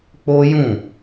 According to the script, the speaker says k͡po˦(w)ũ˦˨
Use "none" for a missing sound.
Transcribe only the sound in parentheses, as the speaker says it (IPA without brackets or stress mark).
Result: j